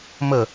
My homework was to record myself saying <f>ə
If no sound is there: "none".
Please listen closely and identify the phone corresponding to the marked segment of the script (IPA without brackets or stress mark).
m